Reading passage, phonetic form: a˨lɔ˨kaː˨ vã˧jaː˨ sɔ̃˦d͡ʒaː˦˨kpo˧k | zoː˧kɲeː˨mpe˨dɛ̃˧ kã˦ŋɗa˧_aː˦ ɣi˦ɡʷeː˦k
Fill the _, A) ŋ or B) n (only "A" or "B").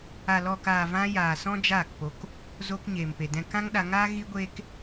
A